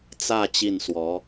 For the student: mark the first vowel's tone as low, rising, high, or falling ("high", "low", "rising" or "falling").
falling